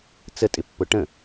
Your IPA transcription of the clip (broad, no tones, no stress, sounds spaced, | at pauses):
t͡s ə tʼ ɪ pː ʊ ʈ ə̃